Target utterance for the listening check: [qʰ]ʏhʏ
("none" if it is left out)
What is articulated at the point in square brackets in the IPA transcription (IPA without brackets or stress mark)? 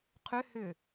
qʰ